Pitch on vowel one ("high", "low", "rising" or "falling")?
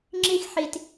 high